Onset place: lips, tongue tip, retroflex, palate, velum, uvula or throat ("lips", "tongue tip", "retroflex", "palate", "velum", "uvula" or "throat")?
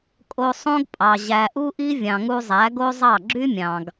velum